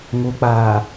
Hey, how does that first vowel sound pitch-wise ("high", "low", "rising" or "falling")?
low